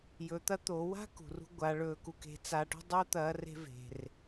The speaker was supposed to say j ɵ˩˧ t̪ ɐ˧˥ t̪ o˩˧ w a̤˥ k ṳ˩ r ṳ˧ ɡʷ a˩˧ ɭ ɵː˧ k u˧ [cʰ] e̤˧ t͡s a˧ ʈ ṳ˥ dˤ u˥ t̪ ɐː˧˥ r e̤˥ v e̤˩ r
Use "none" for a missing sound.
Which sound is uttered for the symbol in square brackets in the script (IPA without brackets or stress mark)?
k